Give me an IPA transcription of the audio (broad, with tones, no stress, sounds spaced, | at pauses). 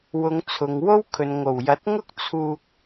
w ʊ˨˧ ŋ t͡sʰ ʊ˨ ŋ w o˥ w kʰ ɵ˨ n ŋ o˨˩ w j ɐ˨˥ t̚ ŋ ʊ˥ k̚ t͡sʰ uː˧ k̚